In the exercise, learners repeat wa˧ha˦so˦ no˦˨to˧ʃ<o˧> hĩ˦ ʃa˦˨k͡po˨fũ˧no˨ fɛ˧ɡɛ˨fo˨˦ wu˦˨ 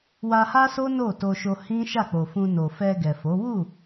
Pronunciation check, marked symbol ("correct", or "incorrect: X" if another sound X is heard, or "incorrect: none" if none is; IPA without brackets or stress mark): correct